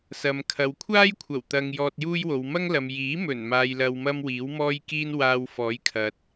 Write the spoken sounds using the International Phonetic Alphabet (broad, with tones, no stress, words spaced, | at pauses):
sɐ˨m kʰɐ˨wkʷʰaː˥jkʷʰɐ˨˩wt̪ɐ˨ŋ jɔː˧t̚juː˥jwo˨˧w mɐ˥ŋlɐ˨m jiː˨˥mɵ˨˩n maː˨jlɐ˨wmɐ˧m wiː˨˥wmɔː˥jkiː˥n waː˧wfɔː˨˥jkʰɐ˨t̚